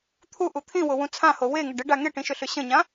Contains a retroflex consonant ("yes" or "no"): yes